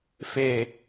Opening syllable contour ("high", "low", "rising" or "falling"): low